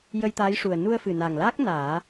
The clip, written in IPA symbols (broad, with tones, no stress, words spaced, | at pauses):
jə˧jt̪aː˧˥jʂu˨˩ə̯ nu˧ə̯fɨ˨˩na˨˩ŋlaː˦˥k̚ naː˨˩˦